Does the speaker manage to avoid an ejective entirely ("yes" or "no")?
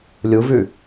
yes